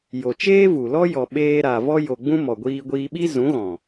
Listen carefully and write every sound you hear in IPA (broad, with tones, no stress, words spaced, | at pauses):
jo˨t͡ʃeː˦vu˨lɔ˦ jɔ˨ɓeː˧ɾa˨ vɔ˧jo˨ɡ͡bũ˧ mɔ˨ɡʷiː˧ɡʷiː˧ ɓi˦zũ˨˦ɣɔ̃˨